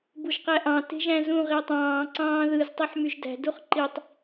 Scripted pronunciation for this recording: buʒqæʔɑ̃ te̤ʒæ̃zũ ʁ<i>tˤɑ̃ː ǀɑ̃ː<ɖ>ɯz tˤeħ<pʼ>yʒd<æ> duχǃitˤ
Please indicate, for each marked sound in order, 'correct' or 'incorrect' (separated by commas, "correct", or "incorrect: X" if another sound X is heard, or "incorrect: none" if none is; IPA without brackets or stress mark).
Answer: correct, incorrect: ð, incorrect: m, incorrect: æ̤